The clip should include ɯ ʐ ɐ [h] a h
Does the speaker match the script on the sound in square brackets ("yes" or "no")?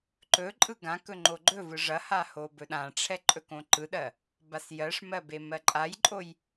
yes